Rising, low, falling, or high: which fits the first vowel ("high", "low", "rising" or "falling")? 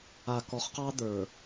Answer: low